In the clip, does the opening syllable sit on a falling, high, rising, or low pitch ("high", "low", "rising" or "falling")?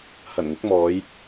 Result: low